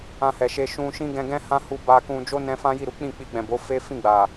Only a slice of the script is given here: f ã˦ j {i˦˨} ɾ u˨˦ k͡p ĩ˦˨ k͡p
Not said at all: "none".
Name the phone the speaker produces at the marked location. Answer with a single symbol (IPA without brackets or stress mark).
i˦˨